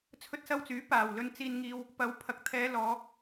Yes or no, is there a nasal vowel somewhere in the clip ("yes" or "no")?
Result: no